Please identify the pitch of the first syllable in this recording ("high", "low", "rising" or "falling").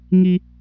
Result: high